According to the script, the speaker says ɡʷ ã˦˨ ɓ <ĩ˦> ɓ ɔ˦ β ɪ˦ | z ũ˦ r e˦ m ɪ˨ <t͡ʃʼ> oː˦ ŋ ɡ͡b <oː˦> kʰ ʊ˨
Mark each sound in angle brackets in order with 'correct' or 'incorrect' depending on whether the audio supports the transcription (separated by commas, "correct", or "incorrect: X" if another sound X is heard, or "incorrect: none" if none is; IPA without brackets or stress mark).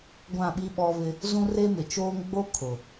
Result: incorrect: i˦, incorrect: t͡ʃ, incorrect: o˦